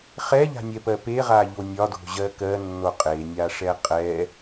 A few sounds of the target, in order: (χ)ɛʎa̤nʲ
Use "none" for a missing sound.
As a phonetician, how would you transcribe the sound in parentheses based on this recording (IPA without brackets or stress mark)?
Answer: χ